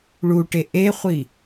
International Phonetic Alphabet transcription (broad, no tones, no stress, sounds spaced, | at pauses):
ɭ u ʈ e ʔ e χʷ i